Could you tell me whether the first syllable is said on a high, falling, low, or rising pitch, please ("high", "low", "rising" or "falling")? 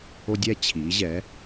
high